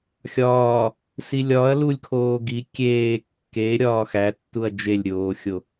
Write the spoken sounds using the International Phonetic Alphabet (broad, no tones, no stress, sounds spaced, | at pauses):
xʲ ɒː | s i lʲ ɒ ɐ̯ l u lʲ kʰ oː ɡ i kʲ eː kː e ɾʲ ɒː x æ tː u ɐ̯ d͡ʒ e lʲ ɾʲ oː xʲ o